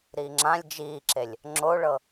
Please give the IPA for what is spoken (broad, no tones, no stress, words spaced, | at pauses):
ɾiːŋ͡ǁãlʲ d͡ʒiːǁelʲ | ŋ͡ǁoɭɤ